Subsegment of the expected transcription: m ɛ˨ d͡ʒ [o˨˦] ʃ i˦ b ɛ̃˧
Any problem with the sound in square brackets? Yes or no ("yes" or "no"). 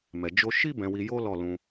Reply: yes